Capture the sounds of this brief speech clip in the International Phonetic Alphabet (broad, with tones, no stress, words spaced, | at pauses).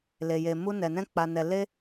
le˧je˧mu˦nɛ˧ nɛ̃˦k͡pa˧nɛ˧ le˦